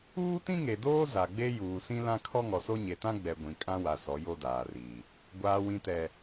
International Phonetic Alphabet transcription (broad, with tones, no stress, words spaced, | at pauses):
uː˦tĩ˦ŋe˨doː˦ za˨ɡ͡be˦ juː˨sĩ˦ lã˦ kʰɔ˦ŋɔ˨so˦ ɲe˨tã˦ ɡ͡bɛ˨ ɡʷĩ˨kʼã˦wa˨ sɔ˨˦jo˦daː˨riː˨ | ɡʷaː˨wĩ˨tɛ˨